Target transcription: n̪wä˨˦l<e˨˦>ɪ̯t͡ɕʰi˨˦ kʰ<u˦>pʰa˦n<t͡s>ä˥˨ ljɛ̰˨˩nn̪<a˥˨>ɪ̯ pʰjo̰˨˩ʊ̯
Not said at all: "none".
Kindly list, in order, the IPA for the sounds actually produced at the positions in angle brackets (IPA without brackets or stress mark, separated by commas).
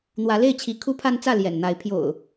e˥˨, u˦, t͡s, a˨˦